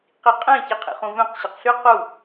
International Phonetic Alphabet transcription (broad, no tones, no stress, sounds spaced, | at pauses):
q i qʼ ɛ̃ ç i qʰ ḭ χ ũ v œ̃ q ɕ ɛ q ɬ y q u